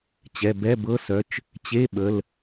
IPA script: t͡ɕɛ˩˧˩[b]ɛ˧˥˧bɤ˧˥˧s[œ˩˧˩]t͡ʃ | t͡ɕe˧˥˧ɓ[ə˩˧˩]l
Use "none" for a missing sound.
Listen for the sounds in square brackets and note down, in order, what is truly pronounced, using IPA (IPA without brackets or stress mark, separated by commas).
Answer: b, œ˩˧˩, ə˩˧˩